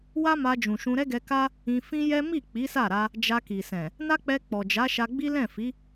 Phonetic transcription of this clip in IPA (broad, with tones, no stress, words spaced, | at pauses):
wa˦ma˧ d͡ʒũ˨ ʃũ˧ɾɛ˦ɡɛ˧ ka˦ | ĩ˧fĩ˦jɛ˦ mi˦˨ k͡pi˨˦sa˦˨ɾa˧ | d͡ʒa˧ki˨sɛ̃˨ | na˦k͡pɛ˧ k͡pɔ˨d͡ʒa˨˦ʃa˧ɡ͡bi˦ lɛ̃˦˨fi˨˦